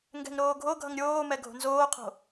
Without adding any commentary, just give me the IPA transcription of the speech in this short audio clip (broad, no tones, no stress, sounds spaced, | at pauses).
ŋ ɡ ɛ̤ ŋ ɾ oː ɡʱ o ɡʱ ʌ ŋ ɾʲ oː m ɛ ɡʱ o̤ n z oː qʰ o̤